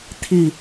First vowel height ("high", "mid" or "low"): high